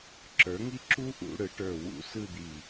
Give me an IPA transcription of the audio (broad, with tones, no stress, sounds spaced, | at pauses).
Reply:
ǁ ə˞˩˥ ŋ i˥ ǁ u˥ ʔ ṵ˩˧ ɽ ɯ˩˧ ʈ ə˞˧˩ w ṵ˧˩˧ s ɯ˥˧ d̪ i˧˩